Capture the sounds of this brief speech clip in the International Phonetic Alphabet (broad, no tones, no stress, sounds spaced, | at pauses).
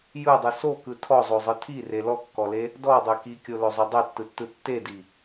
j ɯ dˤ ɯ s o k ɯ tʰ ɔ zˤ o zˤ ɯ tʰ i r e l ɔ kː ɔ l e | d ɔ dˤ e k i kʲ o l ɵ zˤ ɵ dˤ ɛ tː ɯ tː ɯ tː e d i